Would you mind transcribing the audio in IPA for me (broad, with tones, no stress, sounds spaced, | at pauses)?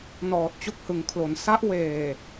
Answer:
n ɔː˨˩ t̚ t͡ɕ o˦˥ k̚ h ɯ˩˦ ŋ kʰ l o˩˦ n s a˦˥ ʔ w eː˨˩